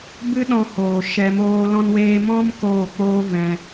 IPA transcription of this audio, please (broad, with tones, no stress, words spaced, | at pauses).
bɨ˦ɗɔ̃˧hoː˨ ʃɛ˧moː˦ lɔ̃˧nweː˧mɔ̃˦m koː˦˨ k͡poː˦ vɛ̃˧